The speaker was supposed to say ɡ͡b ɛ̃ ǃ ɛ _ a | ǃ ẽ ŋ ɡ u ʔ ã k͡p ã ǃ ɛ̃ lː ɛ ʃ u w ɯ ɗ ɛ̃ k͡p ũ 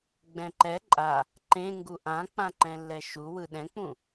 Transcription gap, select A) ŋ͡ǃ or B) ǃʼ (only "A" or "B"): B